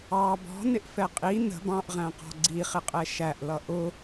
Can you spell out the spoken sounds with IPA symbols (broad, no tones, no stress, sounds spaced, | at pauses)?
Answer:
ɑ b ɔ̤ n ɪ ʔ f ɛ qʼ i n ə̤ b ɑ̃ ʔ ʁ æ̃ q ɔ̤ ɡ͡ǀ i χ ɪ qʼ ɛ ʃ æ ʔ l ʌ ʔ ʊ